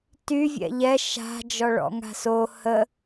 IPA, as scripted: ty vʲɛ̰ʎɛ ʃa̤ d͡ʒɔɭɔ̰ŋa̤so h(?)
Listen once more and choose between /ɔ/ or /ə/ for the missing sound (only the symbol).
ə